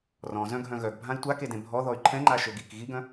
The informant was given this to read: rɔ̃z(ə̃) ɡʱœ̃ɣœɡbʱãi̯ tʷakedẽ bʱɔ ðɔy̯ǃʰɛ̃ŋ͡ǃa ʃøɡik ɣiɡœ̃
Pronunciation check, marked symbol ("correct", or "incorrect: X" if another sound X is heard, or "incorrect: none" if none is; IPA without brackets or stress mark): incorrect: œ̃